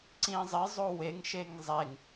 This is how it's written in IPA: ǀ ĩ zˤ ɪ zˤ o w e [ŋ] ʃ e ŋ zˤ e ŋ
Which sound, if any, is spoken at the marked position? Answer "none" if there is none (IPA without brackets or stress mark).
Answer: ŋ